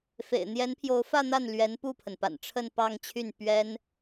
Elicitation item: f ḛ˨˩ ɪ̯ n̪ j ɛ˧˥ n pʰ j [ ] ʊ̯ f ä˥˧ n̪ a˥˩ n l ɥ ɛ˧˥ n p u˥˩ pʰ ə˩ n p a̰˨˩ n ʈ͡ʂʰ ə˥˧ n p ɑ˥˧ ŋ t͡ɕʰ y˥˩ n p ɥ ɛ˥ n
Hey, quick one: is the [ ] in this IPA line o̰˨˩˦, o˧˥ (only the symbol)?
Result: o˧˥